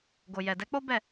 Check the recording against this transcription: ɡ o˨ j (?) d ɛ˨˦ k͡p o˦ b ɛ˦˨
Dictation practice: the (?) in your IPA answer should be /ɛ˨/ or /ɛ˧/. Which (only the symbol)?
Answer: ɛ˨